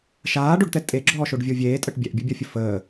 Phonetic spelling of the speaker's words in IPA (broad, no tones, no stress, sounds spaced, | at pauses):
ʃ aː ɖ o ɖ t̪ ɛ tʼ e ɡ͡ǁ ɔː ʃ o ɖ vʲ o vʲ eː tʼ ə ʈ bʲ ɛ ʔ bʲ u bʲ ɔ fʲ ə f əː